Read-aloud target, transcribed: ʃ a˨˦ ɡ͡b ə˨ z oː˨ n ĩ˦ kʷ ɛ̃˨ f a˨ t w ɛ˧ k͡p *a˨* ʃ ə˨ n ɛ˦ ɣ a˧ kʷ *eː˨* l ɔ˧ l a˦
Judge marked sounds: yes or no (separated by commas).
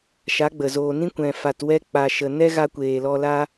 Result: yes, yes